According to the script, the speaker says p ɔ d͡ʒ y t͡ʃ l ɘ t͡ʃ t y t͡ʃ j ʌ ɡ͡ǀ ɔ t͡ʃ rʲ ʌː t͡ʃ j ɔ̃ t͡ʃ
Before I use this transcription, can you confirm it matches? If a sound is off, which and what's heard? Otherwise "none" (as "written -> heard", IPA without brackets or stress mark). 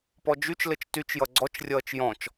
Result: none